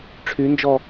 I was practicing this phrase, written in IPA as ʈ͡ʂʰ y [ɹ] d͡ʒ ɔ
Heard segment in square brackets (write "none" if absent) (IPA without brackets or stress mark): n